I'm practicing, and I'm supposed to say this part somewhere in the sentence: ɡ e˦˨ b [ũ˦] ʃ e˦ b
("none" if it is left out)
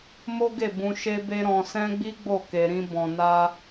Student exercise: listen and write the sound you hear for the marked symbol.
ũ˧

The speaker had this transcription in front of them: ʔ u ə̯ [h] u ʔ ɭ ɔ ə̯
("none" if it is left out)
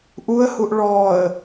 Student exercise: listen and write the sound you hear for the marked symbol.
h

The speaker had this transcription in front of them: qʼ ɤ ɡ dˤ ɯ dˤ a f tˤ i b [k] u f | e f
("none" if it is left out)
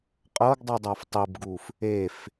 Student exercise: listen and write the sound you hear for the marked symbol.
ɡ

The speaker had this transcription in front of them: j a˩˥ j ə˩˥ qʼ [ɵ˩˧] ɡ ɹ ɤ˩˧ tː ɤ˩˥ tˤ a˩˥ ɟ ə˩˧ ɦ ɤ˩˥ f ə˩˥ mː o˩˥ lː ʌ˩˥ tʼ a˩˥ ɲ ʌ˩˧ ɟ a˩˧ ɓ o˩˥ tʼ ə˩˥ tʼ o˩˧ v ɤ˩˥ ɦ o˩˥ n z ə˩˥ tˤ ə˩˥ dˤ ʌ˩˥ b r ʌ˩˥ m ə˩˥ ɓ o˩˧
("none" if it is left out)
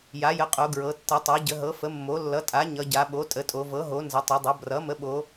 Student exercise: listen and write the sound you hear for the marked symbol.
o˩˧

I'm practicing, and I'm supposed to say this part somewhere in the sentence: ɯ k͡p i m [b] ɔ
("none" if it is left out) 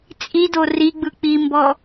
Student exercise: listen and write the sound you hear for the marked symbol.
b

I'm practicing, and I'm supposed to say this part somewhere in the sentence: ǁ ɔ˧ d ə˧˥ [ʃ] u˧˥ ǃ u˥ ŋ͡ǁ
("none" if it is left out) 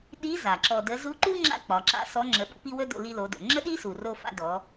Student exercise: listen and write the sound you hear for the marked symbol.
z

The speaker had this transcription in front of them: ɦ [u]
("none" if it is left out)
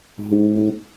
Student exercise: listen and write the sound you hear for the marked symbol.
u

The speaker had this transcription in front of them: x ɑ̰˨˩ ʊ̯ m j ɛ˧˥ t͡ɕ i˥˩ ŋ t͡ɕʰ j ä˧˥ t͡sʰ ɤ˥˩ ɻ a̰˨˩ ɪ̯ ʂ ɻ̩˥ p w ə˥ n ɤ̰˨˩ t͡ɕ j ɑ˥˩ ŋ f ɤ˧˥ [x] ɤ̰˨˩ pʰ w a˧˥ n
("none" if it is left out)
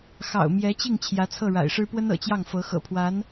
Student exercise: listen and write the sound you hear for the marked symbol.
x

